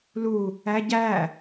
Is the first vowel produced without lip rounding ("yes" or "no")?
no